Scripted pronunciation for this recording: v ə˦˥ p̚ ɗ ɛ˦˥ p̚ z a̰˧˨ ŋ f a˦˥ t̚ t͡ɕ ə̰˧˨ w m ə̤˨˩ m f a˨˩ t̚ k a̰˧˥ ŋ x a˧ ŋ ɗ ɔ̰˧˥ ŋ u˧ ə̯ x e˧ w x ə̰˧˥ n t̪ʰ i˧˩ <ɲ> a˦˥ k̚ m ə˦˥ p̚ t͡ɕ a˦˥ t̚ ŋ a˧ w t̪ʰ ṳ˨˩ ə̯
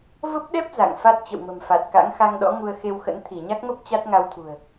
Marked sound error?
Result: no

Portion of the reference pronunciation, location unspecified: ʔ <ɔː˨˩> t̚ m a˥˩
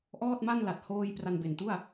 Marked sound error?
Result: yes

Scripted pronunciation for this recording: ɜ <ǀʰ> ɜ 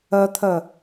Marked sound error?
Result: yes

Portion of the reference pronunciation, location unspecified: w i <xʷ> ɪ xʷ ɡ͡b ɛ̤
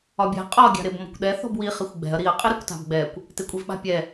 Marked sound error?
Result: yes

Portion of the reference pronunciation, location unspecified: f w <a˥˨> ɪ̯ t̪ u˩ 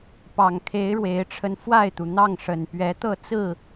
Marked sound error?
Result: no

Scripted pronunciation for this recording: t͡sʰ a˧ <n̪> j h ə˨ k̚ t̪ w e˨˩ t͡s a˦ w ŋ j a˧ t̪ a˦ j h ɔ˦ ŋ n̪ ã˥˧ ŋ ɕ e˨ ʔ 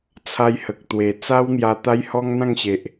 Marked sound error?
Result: yes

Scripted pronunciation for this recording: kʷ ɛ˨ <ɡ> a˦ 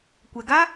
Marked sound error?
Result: no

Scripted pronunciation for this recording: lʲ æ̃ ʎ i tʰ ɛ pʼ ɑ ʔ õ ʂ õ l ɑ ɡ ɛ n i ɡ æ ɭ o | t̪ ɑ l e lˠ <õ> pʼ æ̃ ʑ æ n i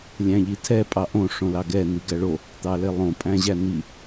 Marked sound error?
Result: no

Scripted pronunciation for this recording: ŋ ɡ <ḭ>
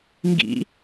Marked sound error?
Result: no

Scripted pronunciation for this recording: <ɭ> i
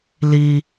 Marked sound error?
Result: yes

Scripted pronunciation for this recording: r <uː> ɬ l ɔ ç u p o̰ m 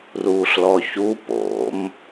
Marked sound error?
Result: no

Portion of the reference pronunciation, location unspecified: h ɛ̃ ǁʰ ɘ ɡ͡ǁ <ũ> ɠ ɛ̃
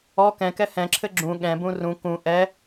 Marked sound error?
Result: no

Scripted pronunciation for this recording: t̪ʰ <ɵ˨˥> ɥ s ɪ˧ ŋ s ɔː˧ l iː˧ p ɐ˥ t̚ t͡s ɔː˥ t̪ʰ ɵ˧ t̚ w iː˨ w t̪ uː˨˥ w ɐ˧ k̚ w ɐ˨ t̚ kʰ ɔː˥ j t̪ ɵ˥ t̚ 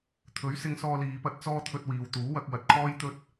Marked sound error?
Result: no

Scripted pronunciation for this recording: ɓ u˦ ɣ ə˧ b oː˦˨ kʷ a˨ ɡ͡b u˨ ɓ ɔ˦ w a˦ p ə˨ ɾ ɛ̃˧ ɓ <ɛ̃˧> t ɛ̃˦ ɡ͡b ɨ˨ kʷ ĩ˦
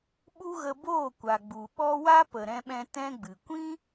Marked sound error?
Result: no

